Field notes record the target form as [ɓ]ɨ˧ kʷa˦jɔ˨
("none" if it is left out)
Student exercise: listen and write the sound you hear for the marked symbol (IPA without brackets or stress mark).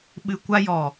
ɓ